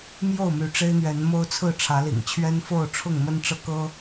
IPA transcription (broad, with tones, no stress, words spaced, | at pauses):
mjo˥˨ʊ̯my˨˦ ʈ͡ʂe˦ɪ̯n̪ɥɛ˨˦nmo˦ʊ̯t͡sʰɹ̩˥˨ ʈ͡ʂʰä˨˦lḭ˨˩ŋ t͡ɕʰɥɛ˦nfo˥˨ʊ̯ʈ͡ʂʰʊ˥˨ŋ mə˦nʈ͡ʂɤ˦kɤ˦